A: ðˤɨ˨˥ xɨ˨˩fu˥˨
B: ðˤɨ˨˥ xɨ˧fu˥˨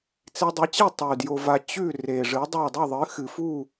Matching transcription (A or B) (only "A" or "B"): A